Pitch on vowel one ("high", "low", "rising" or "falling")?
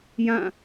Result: falling